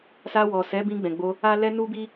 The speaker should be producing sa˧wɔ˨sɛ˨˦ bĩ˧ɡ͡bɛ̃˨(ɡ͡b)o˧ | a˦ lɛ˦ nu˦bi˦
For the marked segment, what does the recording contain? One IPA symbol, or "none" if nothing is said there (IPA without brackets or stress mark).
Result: ɡ͡b